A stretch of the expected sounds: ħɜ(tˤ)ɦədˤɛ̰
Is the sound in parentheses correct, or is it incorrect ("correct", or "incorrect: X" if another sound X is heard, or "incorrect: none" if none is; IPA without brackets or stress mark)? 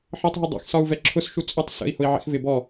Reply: correct